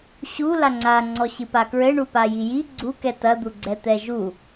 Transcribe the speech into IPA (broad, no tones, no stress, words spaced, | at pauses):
ɕu laŋ͡ǀa ŋ͡ǀɔɕɨpakɹɘ ɳupajiji ɡ͡ǀu kɛtɐ d̪uɡ͡ǀɛt̪ɛʒu